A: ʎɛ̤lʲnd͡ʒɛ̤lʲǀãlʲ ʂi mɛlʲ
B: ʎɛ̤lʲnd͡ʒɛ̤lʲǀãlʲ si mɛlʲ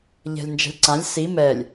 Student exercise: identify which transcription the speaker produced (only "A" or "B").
B